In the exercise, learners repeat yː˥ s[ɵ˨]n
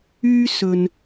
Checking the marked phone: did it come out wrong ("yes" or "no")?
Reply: no